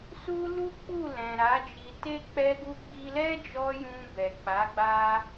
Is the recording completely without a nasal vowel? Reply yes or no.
no